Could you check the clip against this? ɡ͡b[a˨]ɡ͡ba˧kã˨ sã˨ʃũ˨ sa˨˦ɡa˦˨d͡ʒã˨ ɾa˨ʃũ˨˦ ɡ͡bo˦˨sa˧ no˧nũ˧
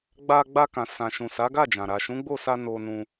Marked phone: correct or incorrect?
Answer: incorrect